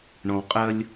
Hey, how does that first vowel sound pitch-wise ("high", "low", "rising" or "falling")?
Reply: low